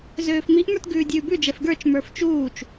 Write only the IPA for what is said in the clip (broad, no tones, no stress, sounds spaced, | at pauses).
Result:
z øː f m i ʔ m ə˞ t ɡ ʉː dʲ ʉː b ʉ d͡ʒ ɛ f ɡ ə˞ t͡ʃ m ə˞ f t͡ʃ uː t͡ʃ